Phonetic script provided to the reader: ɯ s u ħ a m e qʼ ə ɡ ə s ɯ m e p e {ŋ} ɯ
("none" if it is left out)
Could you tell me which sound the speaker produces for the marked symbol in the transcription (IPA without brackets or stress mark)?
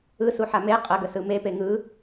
ŋ